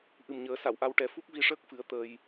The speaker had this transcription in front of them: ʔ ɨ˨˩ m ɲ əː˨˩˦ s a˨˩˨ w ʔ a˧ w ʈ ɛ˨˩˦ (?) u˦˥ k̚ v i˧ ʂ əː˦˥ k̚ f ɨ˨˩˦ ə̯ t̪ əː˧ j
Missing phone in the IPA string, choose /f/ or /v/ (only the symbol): f